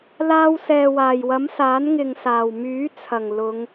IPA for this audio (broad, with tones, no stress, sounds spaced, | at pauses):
l aː˧ w s ɛː˨ w aː˨˩ j w ɐ˨˥ m s aː˨˥ n ŋ ɪ˨ ŋ s aː˨˩ w m yː˨˥ t͡sʰ ɐ˨˩ ŋ l ʊ˨˧ ŋ